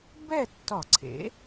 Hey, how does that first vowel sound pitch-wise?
falling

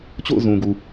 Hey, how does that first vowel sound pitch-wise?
falling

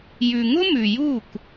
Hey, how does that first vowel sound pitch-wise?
low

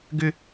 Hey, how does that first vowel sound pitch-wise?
high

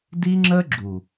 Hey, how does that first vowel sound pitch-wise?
high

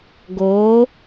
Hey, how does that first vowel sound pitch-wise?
rising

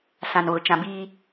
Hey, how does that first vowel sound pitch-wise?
low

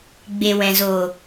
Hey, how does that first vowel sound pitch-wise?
low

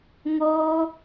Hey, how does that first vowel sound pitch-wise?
high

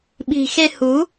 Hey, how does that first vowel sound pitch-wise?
low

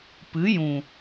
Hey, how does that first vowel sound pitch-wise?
rising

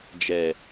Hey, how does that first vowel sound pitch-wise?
low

